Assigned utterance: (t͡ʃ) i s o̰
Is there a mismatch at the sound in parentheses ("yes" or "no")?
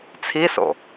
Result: yes